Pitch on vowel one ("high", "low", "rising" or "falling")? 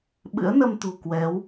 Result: rising